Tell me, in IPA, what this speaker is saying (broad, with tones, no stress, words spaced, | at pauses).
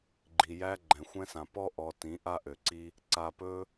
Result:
ɡ͡ǃi˨ jæ˧ ɡ͡ǃɛ̃˨xʷɛ̃˧sã˨ pɔ˧ʔɔ˨ tĩ˨˦ʔa˦ʔø˨ǀi˦ | ǀa˨pɵ˧